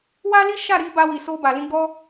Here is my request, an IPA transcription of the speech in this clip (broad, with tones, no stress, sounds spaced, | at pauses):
w a˦ l i˦ ʃ a˦˨ ɾ i˨˦ b a˧ w i˨ s o˧ b a˨ l ĩ˧ ɡ͡b ɔ˦